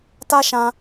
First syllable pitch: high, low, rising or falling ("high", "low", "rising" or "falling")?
high